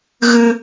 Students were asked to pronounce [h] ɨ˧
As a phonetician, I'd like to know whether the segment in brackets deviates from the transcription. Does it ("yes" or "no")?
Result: yes